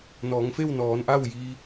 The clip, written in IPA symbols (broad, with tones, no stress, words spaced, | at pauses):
nɔː˩˧ŋfe˥˨wnɔː˩˧nʔa˥˨w ji˧